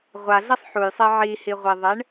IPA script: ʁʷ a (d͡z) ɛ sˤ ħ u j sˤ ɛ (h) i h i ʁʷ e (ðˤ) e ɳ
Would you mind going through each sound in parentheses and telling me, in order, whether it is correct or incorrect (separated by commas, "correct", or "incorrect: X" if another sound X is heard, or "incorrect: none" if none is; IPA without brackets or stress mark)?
incorrect: ɮ, incorrect: ʕ, correct